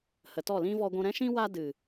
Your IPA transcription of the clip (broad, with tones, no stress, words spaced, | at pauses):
hə˨tɔ˦˨lĩ˦ vɔ˧ɡʷũ˧ ɾɛ̃˦ʃĩ˦ wa˦dɨ˨